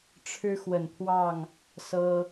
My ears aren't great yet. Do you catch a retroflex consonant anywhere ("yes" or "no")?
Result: yes